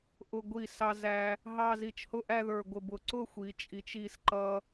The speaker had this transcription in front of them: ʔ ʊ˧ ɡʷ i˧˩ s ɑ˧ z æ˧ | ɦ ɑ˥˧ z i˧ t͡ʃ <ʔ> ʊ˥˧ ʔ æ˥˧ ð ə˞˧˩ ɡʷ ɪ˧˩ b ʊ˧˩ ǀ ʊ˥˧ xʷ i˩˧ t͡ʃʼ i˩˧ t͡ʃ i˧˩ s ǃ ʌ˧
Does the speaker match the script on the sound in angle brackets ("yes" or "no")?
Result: no